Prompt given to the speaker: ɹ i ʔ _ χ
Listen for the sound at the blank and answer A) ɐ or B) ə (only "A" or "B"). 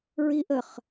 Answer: B